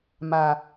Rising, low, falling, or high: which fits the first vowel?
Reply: low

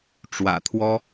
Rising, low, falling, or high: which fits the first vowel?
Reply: low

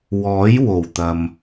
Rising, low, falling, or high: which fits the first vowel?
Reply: rising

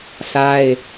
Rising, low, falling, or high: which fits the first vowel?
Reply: high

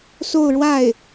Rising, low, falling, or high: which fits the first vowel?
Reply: falling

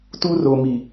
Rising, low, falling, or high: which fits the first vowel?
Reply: high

